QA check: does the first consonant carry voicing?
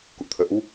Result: no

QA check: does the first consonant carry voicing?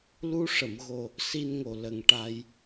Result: yes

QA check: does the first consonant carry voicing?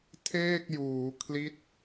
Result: no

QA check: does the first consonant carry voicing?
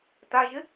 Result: no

